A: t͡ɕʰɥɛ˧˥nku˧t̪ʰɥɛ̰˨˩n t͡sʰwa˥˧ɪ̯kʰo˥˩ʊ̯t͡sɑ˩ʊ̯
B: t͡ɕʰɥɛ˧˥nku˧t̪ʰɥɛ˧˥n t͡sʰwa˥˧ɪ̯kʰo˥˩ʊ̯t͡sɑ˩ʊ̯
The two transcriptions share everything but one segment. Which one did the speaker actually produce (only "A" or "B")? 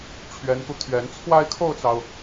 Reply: B